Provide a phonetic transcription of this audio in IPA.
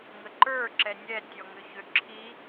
ŋəǃə˞ ǁɛnʲɛ tʲɔŋʏçøǁʰi

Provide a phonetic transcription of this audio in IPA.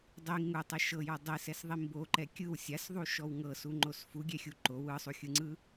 dˤi ŋutˤɛ ʃɤjɔ dˤisɛsðˤi mboǃɛ kʲɯw sʲasðˤuʃɔw ŋɤsuŋ͡ǃos fuɡʲɛxʲu ǃow ɯsˤuxʲɯŋ͡ǀɯ

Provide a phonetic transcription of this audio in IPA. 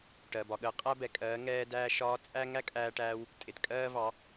ʈɜ˨bɒ˨ɠəː˧ qʼæ˦bɛ˨kʼɜː˨˦ ŋɛː˦dæː˦ʃɒː˦ t͡sʼæ˦ ŋæ˦kʼæː˧ʈæː˧w | tʼɪ˨tkʼɜː˦vɑ˨˦

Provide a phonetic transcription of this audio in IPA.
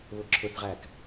βʊǁʰʊθʁæk

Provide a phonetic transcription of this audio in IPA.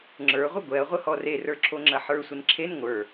ŋ͡ǁə˞ ʁʷəɡʷɛɐ̯ ʁʷəhɔre rə˞ǁʰoŋ͡ǁɐħə˞ sʷənǁʰen ŋʷə˞

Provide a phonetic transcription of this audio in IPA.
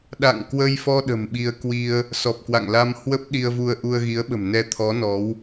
ɗa̰˧˨ŋkwə˧jfɔ˧ ɗə̤˨˩mɓi˧ə̯kwi˧ə̯ | sɔ˨˩p̚kwa̰˧˨ŋla˧mhwə˦˥p̚ ɗi˧ə̯vu˧ə̯ʔu˧ə̯ ɣi˨˦ə̯ɓə̤˨˩m nɛ˧t̪ʰɔ˨˦ nɔ˨˦w

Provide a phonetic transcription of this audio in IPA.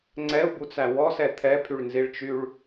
ŋ͡ǀɛu̯but͡sæ wɔsɛ t̪ʰɛpʰyɭnziɭt͡ʃyɭ

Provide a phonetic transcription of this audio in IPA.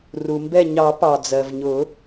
ru˩mbɛ˧˩ɲɑ˨˩˦pɑ˩ d͡zɜ˩vɲʊ˨˩˦

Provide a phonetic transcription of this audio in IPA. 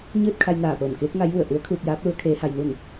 ɲɯː˥˨t̚kʰa˧jnaː˧˩pɤː˧˩m keː˧˥k̚ŋa˧˥jʋu˧˩ə̯ ʔu˧˥ə̯kʰuː˧p̚jaː˧˥p̚lu˧˥ə̯ kʰeː˧˥ha˧jnu˥˨n

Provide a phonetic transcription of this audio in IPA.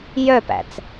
jœpæ̰t͡s

